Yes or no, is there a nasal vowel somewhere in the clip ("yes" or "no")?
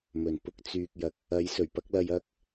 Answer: no